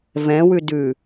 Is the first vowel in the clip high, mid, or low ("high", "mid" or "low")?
mid